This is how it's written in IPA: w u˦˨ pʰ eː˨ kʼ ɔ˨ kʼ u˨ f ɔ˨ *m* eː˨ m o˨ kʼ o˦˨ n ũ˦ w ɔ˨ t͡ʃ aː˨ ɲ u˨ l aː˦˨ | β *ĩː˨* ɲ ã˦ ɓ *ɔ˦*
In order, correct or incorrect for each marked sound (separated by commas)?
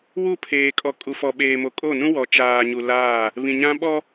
incorrect, incorrect, correct